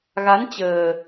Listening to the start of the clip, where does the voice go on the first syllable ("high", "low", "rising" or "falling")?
rising